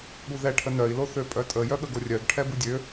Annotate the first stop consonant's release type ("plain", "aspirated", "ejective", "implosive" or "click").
implosive